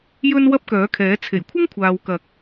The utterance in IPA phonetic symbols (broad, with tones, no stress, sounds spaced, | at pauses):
j ɵ˥ n w ɐ˥ p̚ k œː˨˥ kʰ ɛː˨˥ t͡sʰ e˨˩ j kʷʰ ɪ˥ ŋ kʷʰ aː˨ w k ɐ˨˥ k̚